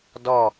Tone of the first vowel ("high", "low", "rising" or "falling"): falling